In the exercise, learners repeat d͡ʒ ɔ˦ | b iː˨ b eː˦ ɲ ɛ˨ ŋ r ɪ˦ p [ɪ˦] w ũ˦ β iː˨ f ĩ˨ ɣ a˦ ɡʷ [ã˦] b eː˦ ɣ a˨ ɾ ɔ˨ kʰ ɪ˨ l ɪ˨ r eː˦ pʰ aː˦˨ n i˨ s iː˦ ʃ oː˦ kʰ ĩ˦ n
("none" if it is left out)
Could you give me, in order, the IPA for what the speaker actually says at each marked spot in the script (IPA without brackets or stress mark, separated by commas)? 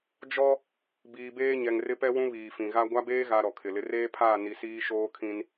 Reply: ɛ˦, a˦